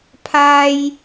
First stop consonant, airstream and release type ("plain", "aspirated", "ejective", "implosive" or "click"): aspirated